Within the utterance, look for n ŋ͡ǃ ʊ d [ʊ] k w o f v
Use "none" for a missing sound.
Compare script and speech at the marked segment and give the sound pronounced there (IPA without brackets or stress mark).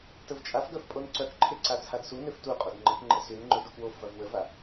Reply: u